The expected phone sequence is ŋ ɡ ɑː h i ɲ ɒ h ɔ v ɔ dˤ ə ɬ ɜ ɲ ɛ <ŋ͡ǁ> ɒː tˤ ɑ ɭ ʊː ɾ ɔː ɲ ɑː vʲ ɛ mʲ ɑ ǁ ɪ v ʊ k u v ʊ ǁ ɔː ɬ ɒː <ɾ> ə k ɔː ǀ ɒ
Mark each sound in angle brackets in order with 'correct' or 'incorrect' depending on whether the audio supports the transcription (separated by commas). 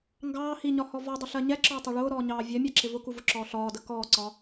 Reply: incorrect, incorrect